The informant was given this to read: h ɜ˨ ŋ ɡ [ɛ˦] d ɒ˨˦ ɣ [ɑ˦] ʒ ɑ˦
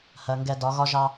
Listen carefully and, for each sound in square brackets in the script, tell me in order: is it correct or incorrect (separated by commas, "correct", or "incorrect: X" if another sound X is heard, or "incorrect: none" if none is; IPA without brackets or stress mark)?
correct, incorrect: ɒ˦